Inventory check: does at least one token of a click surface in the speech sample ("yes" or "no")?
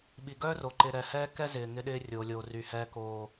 yes